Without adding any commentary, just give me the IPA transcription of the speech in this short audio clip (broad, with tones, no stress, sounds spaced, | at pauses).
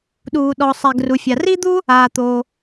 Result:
ɗ uː˩ ɗ ɔ˩ sˤ ɛ˩ ɡ r u˩ fʲ a˩ r i˥ d̪ u˥ | aː˩ t̪ oː˩